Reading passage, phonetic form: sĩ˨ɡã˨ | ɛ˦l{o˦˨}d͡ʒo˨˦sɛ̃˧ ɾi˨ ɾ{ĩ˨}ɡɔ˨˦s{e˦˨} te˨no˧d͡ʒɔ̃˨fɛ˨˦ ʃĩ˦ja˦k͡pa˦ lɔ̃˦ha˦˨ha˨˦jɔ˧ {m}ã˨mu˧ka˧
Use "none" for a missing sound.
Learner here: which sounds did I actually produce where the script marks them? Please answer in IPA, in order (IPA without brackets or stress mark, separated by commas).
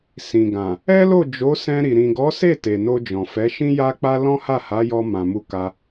o˦˨, ĩ˨, e˦˨, m